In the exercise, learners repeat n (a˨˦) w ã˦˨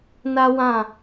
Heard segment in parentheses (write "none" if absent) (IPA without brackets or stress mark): a˦